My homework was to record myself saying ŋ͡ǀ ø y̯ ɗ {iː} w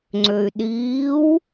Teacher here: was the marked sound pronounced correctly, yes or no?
yes